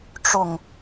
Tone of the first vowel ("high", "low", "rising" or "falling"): low